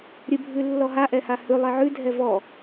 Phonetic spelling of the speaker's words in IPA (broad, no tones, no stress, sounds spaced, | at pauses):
ɾʲ ɨ bʱ ʉ lː ɔ ɦ a ʔ ɛ h a h ʉ lˠ ɛ ʕ ʉ dʱ ɛ v ɔ